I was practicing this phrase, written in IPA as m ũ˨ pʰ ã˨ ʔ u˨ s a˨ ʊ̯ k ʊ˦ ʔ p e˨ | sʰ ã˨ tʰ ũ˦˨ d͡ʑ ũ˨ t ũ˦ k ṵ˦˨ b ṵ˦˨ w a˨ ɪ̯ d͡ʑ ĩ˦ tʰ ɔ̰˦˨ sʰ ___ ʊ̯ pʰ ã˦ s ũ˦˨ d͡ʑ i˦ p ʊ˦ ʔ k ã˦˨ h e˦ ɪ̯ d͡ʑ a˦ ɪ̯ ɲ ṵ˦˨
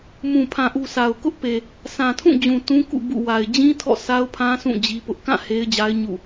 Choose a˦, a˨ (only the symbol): a˦